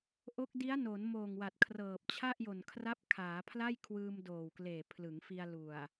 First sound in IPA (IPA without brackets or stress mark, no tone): ʔ